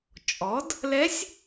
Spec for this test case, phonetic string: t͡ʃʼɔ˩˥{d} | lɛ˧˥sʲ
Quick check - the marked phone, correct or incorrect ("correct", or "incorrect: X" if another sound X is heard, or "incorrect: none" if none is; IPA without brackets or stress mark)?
correct